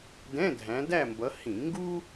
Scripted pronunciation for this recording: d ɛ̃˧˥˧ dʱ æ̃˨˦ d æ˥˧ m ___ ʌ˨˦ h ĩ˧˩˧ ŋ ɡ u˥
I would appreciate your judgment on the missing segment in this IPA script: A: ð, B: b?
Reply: B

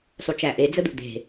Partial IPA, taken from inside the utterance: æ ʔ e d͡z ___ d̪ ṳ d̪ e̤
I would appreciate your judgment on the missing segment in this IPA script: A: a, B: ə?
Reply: B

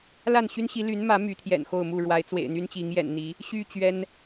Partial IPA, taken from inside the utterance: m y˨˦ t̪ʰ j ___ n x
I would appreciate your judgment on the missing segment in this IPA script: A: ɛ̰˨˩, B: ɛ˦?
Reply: A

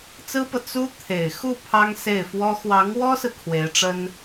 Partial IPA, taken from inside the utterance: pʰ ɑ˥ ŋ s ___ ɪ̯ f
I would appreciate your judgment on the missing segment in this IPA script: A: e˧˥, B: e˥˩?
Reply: B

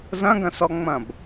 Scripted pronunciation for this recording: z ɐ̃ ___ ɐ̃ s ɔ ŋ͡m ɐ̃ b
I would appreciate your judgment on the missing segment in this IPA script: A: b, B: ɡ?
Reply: B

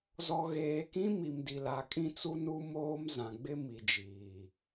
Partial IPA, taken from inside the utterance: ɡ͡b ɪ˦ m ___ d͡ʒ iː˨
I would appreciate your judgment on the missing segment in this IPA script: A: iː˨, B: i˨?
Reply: B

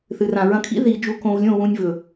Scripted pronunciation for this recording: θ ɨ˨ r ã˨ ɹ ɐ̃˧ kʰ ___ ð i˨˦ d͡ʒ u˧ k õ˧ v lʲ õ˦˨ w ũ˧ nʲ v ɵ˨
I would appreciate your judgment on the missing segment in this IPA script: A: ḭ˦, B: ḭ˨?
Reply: A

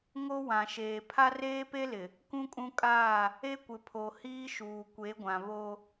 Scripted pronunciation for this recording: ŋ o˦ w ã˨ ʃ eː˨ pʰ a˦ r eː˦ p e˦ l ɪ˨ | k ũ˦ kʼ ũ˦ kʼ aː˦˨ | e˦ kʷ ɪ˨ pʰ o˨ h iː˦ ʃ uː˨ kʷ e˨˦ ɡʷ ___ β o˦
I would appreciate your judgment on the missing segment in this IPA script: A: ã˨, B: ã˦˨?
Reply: A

